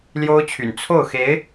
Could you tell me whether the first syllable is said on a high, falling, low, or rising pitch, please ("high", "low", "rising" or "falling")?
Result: high